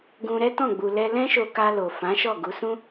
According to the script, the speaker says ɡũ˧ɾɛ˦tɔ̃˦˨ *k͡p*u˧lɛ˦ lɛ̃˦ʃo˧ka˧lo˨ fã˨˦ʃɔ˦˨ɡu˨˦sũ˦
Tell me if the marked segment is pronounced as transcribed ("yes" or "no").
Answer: no